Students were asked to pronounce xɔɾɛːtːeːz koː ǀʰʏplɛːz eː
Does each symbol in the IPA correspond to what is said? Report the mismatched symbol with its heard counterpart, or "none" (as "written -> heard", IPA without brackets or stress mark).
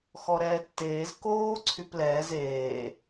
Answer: ʏ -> y